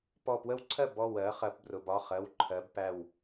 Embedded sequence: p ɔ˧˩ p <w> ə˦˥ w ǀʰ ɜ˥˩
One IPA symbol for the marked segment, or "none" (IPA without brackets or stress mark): w